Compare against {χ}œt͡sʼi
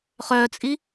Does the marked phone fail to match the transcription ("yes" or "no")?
no